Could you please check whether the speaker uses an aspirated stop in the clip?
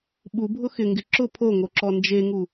yes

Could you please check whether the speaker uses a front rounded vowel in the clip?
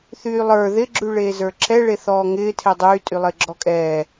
yes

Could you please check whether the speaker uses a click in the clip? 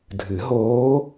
no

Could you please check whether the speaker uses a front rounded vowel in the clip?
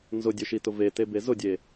no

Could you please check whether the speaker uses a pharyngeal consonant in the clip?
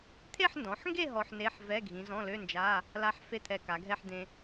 yes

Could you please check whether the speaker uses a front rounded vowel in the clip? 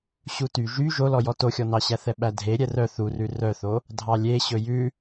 yes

